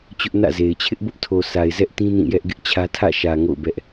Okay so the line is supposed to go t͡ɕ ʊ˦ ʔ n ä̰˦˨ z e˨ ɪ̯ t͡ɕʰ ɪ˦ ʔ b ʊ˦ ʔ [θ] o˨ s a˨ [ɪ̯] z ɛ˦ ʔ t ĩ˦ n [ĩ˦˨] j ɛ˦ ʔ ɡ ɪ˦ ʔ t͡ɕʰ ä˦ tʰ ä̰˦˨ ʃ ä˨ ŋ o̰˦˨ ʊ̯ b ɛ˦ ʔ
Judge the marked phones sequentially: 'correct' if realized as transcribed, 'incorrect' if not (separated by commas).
incorrect, correct, correct